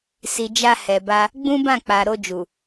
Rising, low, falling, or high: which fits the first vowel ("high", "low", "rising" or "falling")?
low